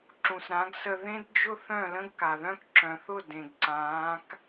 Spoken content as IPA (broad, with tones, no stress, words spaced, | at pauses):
ǁũ˨sɾã˨˦ɡsə˧ ðẽ˦dd͡ʒʊ˦ θœ̃˦˨lə̃˦ɡka˨ ðœ̃˦k ǁœ̃˨θʊ˦˨ dẽ˨ɡǀãː˨˦k